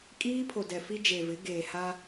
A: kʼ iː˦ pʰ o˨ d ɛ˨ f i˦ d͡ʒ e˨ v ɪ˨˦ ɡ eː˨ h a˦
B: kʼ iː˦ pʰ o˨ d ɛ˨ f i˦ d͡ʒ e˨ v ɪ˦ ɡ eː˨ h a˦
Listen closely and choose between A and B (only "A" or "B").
A